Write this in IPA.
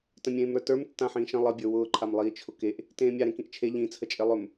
t ə̃ mʲ ẽː m ɾ ə˞ t ə˞ m tː ã ħ ĩː ʃ ə̃ lˠ ə bʲ ə˞ w ʊː ǃʰ a m lˠ iː t͡ʃʰ ʊ k e ʔ | t ẽː mʲ a ɾ ẽ k ĩ ʔ t͡ʃʰ e ʎ ĩ t͡sʰ ə t͡ʃʼ e lˠ ɵ m

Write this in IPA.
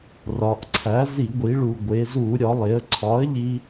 r ɒ˩˧ ʔ ǀʰ æ˩˥ z i˧˩˧ ɡʷ i˩˧ ɭ u˨˩ ɡʷ e˩˧ z u˧˩˧ ɾʲ ɒ˩˧ lˠ e˩˧ ə̯ ǀʰ ɒ˩˥ ə̯ ʎ i˧

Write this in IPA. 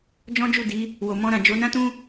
d͡ʒ ɔ̃˦ d͡ʒ u˦˨ d i˨˦ | w o˨ m ɔ̃˧ ɾ ã˨ d͡ʒ o˨˦ n ã˦ t ũ˦

